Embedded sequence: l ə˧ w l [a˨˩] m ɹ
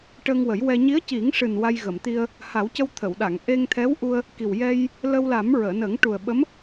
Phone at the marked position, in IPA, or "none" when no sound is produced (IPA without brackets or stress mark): a˨˩˦